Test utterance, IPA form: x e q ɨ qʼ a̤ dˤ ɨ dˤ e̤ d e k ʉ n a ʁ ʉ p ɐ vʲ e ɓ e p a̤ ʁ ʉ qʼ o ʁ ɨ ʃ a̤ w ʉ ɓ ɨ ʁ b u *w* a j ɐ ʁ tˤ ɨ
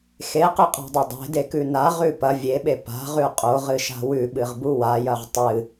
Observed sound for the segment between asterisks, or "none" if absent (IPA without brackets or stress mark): w